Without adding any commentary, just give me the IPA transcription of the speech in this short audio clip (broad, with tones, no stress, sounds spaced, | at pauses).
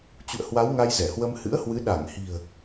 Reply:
t͡ɕ ṵ˧˨ ə̯ h w a˨˦ w ŋ a˧ j z ɛ˧˩ h w ə˧ m h ɨ̰˧˥ ə̯ h w ɨ˨˦ ɗ a˧˩ ŋ h i̤˨˩ ə̯